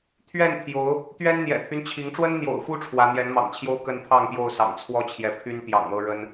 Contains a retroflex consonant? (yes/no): yes